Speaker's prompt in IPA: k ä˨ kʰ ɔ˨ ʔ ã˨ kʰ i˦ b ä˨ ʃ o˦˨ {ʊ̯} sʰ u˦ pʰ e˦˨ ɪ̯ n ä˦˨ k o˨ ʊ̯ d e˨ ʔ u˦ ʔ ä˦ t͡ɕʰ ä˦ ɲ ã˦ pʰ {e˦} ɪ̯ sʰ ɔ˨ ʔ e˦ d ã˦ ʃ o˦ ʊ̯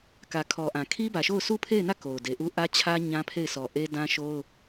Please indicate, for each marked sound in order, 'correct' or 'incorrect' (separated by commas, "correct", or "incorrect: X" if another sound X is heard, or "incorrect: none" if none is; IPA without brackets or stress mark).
correct, incorrect: e˦˨